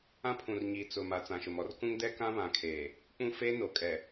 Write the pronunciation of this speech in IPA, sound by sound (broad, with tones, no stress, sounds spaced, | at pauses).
ã˦ pʰ ũ˨ r ɲ iː˨ t͡s ʊ˨ m a˨ t͡s ã˨ ʃ ʊ˨ m ɔ˦ r k ũ˦ ŋ d ɛ˦ k ã˦ β ã˨ kʰ eː˨ | k͡p ũ˦ f eː˦ n o˨ kʼ ɛ˨